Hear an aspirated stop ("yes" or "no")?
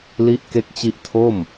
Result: yes